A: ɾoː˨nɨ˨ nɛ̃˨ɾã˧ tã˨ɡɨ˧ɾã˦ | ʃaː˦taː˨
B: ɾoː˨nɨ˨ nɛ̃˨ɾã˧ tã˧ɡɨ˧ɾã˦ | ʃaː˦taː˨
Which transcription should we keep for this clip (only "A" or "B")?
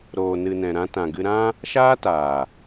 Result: A